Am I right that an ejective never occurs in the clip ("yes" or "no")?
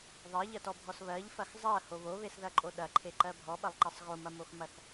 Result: no